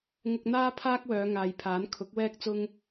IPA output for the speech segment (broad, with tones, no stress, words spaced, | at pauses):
ŋʊ˧k̚n̪aː˥pʰaː˥k̚wœː˨˧ ŋaː˨jpʰaː˨˥n kʰʊ˨˥k̚wɛː˥k̚ t͡sʊ˥ŋ